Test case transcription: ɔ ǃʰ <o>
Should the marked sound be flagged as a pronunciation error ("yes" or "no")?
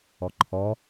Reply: yes